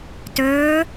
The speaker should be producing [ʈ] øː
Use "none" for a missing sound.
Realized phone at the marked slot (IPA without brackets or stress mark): t